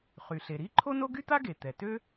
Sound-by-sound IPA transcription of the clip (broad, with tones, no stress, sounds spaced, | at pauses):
χ y˩ ɬ e˩ ɾ i˥ ǃʰ o˥ n o˥ ɡ y˥ t̪ a˥ ɡ e˩ t̪ ɛ˩ t ø˥